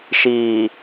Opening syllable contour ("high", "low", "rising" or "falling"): low